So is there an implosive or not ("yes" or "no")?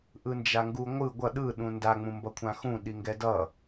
yes